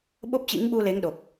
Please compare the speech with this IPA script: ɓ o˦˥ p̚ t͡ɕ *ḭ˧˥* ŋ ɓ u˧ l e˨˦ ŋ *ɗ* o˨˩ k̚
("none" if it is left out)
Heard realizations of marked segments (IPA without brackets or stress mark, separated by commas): ḭ˧˥, ɗ